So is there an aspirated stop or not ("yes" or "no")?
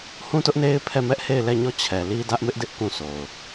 yes